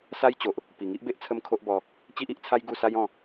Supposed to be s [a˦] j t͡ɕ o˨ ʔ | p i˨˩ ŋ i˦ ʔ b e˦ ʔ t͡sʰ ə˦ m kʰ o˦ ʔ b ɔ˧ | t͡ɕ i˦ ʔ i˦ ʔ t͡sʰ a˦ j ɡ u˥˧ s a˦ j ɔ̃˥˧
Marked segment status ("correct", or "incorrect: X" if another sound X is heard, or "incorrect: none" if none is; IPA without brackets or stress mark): correct